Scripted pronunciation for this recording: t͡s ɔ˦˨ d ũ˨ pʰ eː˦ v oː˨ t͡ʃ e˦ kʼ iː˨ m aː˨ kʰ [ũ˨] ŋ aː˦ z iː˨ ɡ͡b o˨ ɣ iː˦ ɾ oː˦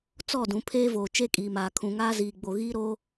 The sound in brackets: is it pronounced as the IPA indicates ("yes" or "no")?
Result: yes